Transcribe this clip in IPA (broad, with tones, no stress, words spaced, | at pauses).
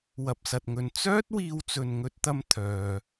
wɐ˨p̚sɐ˨t̚ŋɵ˨n t͡sœː˥t̚ wiː˧wt͡sɵ˨nŋɵ˧t̚t̪ɐ˧m t̪ʰœː˨